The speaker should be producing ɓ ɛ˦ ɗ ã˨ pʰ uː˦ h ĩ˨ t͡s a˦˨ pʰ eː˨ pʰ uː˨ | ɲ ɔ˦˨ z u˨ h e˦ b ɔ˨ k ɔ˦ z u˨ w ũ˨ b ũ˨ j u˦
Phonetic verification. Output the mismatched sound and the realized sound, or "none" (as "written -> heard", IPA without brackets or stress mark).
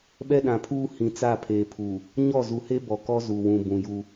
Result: none